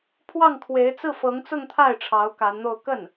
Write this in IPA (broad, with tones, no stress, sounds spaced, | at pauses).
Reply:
pʰ w ɑ˥˩ ŋ kʰ w e˧˥ ɪ̯ t͡s ɹ̩˥˩ f ɤ˧˥ ŋ t͡s ʊ˥˧ ŋ t̪ʰ a˥˩ ɪ̯ ʈ͡ʂʰ ɑ˧˥ ʊ̯ k a˧˥ n n̪ o˥˧ ʊ̯ k ə˥˩ n